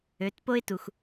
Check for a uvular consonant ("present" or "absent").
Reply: absent